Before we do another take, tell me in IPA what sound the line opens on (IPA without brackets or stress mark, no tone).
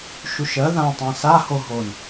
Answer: ʃ